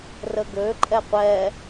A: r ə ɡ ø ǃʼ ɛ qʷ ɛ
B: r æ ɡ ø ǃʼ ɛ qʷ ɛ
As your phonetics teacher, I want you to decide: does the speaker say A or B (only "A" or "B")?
A